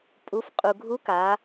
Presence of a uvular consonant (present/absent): present